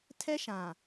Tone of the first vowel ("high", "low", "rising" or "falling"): high